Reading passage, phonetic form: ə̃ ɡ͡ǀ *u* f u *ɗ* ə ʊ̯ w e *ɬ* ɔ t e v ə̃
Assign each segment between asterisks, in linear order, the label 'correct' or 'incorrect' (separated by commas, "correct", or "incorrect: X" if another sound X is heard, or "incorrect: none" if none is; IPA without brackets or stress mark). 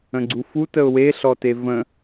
correct, incorrect: t, correct